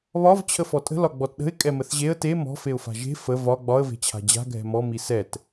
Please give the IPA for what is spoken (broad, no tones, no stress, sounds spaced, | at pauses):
β ɒ v t͡ɕʰ ə f ɔ tʼ ə̤ l ɒ ɡ͡b ɔ t ɗ ə̤ ɪ̯ kʼ ɛ m ə θ ʑ e ə̯ t e m ɔ̤ f e ʊ̯ f a̤ ʒ e̤ f ə v ɒ ɡ͡b ɒ ə̯ v e̤ t͡ɕʰ a̤ d͡ʑ a̤ ɡʱ ɛ̤ m ɔ m i s ɛ t